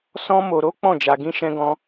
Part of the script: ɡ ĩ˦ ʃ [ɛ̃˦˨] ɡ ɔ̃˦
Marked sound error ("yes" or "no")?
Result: yes